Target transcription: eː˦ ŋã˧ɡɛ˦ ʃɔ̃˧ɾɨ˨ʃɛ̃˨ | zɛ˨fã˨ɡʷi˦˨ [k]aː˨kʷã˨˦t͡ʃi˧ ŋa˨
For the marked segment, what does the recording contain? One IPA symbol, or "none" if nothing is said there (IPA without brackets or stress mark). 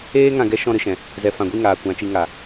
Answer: ŋ